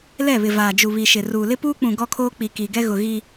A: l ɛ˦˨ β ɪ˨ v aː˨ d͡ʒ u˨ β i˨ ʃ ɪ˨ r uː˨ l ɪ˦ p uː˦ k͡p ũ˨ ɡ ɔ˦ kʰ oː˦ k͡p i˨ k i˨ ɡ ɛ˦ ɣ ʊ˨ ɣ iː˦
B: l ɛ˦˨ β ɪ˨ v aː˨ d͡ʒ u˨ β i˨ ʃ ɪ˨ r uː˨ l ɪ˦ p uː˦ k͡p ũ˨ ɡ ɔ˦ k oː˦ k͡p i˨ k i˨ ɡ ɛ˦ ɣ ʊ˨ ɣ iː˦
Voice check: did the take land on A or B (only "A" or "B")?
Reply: A